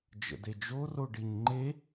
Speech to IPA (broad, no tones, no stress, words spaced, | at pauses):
d͡ʒə̰ded͡ʒo roɖiɲŋ͡ǃe